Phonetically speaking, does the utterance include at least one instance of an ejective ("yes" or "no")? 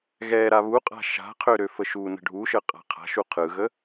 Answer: yes